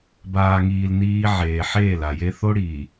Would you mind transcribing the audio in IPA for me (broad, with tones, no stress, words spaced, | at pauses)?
baː˨ŋiː˨l niː˦ʕeː˨ ħeː˦˨la˨je˦ θo˦ɽiː˨